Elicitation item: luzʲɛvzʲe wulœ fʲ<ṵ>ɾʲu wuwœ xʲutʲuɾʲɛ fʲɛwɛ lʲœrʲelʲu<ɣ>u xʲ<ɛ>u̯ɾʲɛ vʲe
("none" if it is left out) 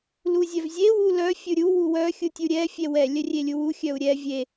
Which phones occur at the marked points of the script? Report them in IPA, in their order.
u, w, œ

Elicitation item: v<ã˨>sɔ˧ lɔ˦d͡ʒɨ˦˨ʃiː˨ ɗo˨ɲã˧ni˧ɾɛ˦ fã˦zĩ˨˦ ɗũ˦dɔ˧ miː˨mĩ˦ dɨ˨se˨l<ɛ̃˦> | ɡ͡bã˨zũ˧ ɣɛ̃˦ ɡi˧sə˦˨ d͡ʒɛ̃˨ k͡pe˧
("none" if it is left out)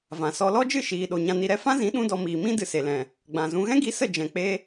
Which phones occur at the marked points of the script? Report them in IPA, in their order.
ã˨, ɛ̃˨

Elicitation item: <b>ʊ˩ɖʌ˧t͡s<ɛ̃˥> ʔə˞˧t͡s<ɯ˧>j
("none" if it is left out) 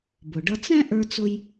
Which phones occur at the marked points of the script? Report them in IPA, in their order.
b, ɛ̃˥, ʊ˧

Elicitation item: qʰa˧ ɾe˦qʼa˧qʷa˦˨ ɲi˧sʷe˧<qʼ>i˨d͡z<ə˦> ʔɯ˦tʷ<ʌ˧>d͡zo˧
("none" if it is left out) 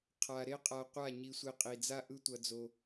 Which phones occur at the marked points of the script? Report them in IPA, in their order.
qʼ, a˦, ʌ˧

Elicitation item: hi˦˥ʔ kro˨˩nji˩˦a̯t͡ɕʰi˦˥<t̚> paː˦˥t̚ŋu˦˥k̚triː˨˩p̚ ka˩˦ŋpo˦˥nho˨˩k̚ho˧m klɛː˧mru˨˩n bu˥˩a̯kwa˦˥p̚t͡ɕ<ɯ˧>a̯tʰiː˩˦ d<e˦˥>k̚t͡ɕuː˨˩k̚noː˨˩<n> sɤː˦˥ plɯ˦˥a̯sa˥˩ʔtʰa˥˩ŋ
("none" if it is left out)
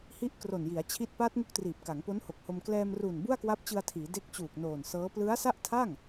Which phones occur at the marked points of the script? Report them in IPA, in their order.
t̚, ɯ˧, e˦˥, n

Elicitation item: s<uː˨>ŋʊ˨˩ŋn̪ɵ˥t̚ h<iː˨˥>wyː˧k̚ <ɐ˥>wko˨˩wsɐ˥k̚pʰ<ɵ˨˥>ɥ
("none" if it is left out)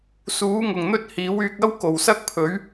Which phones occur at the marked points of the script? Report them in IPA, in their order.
uː˨˥, iː˨˥, ɐ˥, ɵ˨˥

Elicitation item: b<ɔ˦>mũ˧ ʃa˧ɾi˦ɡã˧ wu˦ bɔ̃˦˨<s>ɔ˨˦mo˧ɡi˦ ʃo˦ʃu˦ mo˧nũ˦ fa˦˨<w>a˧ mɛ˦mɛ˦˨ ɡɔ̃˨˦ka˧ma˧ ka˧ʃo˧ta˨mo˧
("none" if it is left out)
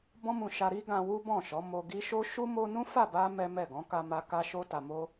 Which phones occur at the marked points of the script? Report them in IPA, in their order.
ɔ̃˦, ʃ, b

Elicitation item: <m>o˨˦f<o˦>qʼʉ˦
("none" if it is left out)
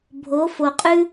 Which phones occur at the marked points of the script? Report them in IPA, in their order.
bʱ, o˨

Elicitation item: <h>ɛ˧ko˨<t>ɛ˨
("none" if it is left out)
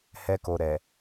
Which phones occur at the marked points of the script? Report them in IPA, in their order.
h, ɾ

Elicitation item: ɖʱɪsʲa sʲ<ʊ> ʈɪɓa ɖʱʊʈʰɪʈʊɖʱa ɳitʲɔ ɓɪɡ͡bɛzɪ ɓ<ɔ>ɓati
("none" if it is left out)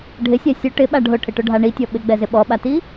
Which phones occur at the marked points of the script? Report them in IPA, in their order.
ʊ, ɔ

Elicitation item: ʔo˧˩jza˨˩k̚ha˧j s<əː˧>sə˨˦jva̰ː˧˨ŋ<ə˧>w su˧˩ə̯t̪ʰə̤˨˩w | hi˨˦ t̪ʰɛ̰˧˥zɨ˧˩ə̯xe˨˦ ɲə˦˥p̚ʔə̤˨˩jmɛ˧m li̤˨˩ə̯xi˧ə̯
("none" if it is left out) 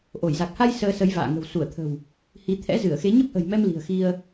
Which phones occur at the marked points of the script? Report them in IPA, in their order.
əː˧, ə̤˨˩

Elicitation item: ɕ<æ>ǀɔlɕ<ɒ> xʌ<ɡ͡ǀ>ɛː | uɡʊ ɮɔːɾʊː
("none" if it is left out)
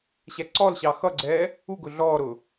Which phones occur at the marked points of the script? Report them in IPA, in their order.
æ, ɑ, ɡ͡ǀ

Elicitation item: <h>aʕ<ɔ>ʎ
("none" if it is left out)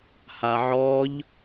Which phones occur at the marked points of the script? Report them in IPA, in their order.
h, ɔ

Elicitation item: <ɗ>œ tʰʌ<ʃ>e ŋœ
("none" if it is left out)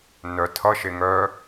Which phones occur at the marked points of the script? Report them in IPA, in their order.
n, ʃ

